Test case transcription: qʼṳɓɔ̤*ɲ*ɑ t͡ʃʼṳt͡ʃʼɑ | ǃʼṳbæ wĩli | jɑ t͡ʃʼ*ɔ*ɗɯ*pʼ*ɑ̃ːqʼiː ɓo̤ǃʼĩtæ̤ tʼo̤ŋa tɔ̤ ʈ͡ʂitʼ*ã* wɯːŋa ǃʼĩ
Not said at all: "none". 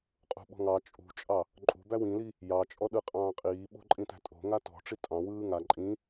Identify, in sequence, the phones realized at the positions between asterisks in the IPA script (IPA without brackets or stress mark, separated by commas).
ŋ, ɔ, qʼ, ɑ̃